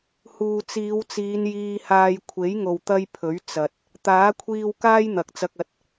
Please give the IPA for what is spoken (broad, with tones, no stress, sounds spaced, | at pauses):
h uː˨ t͡s iː˨˧ w t͡s iː˨˧ n j iː˧ h aː˧ j kʷʰ e˨˥ j ŋ o˨ w t̪ ɐ˧ j pʰ ɵ˨˥ ɥ t͡s ɐ˨ t̚ | t̪ aː˨˥ kʷʰ iː˧ w k aː˥ j n̪ ɐ˨˥ k̚ t͡s ɐ˧ k̚ ɐ˧ t̚